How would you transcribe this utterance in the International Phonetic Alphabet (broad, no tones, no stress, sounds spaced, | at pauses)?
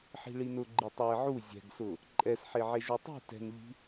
ħ i̤ ɭ i n ʊ ɡ͡ǃ i tˤ a ɪ̯ ʕ u zʲ ɛ̤ ɡ s ʊ | ǃʼ ɛ s ħ e ʕ e ʒ u tˤ i̤ t ɛ̤ n ʎ i̤